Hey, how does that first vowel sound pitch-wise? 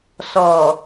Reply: low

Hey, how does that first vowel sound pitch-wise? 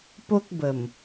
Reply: high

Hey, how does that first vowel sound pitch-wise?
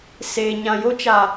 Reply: low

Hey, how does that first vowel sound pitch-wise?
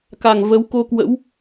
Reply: low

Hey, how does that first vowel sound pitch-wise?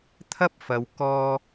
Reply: high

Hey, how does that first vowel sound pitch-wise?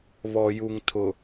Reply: low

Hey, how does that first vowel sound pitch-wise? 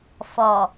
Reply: low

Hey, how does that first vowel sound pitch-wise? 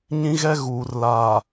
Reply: high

